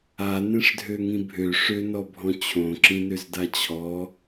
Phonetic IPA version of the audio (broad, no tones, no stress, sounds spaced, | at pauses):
a n ẽ ʂ dʱ ø ŋ ĩ bʱ ø ʂ ø n ɔ bʱ ɔ̃ t͡ɕʰ õ ǁ ĩ n ø z d a t͡ɕʰ ɔ